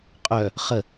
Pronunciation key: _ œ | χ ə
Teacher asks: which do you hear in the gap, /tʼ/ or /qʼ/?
qʼ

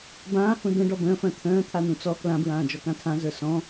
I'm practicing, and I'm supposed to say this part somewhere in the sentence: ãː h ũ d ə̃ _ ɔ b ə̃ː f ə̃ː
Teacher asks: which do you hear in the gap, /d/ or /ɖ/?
ɖ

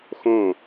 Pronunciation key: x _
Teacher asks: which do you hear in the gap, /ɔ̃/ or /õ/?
õ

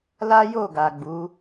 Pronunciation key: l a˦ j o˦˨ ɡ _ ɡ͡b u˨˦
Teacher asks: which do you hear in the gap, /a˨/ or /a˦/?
a˨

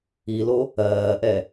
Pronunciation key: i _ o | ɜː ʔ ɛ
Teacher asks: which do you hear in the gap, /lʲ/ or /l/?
l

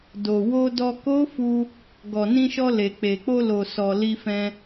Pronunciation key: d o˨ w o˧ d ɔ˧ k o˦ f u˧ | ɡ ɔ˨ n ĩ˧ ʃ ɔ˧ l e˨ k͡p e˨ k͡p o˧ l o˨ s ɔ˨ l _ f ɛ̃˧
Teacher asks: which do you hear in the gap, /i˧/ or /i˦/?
i˧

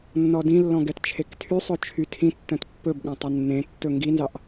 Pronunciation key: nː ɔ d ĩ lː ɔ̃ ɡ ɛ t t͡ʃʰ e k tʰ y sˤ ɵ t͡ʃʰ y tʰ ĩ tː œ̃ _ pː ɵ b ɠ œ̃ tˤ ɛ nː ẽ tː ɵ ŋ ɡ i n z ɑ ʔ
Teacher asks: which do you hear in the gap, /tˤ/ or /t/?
t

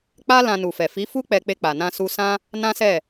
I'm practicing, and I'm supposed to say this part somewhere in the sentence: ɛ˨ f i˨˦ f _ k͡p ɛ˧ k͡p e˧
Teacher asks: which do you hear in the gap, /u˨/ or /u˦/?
u˦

